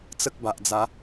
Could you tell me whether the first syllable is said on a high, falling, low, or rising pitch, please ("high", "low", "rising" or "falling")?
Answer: high